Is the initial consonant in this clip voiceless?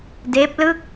no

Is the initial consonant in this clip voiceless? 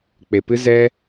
yes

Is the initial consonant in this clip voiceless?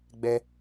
no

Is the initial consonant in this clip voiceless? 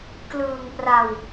yes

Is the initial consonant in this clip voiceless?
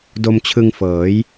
no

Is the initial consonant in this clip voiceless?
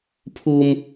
yes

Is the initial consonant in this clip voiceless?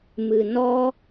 no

